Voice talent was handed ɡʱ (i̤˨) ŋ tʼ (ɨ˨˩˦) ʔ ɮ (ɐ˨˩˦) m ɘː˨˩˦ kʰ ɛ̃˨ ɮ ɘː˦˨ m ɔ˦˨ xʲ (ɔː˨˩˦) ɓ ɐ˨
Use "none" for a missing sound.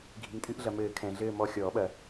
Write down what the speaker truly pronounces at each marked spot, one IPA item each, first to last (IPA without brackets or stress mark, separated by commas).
i̤˨, ɨ˨˩˦, ɐ˨, ɔː˨˩˦